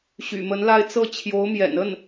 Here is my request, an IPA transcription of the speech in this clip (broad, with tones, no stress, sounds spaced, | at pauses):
ɕ y̰˨˩ m ə˧˥ n l a˥˧ ɪ̯ t͡s ɤ˥˩ t͡ɕʰ j o˧˥ ʊ̯ m j ɛ̰˨˩ n ə˥˩ n